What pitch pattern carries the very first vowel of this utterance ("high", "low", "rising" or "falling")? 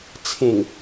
low